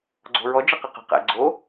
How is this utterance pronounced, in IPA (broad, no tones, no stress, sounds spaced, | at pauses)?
ɡ͡ǀ o̤ ɹ ɔ d͡ʒ ə q ɨ q ə̤ q ɛ̰ ɡ͡ǀ o